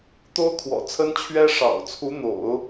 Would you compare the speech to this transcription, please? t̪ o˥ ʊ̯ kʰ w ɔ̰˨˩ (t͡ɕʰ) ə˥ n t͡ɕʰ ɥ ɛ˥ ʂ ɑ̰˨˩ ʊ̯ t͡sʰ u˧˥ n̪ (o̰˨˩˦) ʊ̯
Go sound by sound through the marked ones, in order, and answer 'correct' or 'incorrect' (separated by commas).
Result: incorrect, correct